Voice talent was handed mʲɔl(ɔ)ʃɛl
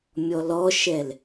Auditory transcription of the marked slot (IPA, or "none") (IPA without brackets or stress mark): ɔ